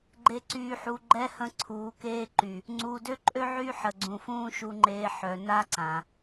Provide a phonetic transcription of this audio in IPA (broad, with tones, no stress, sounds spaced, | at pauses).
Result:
ɡ͡ǃ e˨ ǀ yː˨ ħ u˨ ɡ͡ǃ ɛ˦ h ə̃˦ ǀʰ uː˨˦ k eː˦ ǃ y˨ | ŋ͡ǀ uː˨ d ø˦ ǃʼ ø˦ ʕ y˦ ħ ə˨ ɡ͡ǀ ũ˨ f ũː˦ ʃ u˨ ŋ͡ǃ eː˨ ħ œ˨ n a˦ ǀ ã˨